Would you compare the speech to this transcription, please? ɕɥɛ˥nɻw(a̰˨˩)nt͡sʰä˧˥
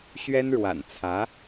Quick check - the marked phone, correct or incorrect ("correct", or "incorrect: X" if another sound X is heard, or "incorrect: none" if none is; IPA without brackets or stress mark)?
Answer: correct